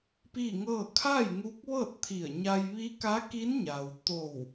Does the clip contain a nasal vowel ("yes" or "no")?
no